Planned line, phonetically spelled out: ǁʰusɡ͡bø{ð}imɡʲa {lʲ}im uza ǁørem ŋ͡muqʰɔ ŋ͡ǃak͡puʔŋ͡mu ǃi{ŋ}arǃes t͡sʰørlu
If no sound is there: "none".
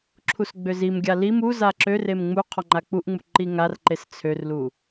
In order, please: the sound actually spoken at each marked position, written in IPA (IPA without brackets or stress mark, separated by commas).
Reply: z, l, ŋ